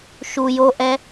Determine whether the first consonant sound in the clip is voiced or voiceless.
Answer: voiceless